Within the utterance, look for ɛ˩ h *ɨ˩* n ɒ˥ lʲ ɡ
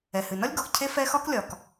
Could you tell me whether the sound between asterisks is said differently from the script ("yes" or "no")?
no